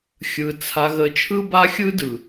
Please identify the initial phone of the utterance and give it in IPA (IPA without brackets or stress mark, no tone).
xʲ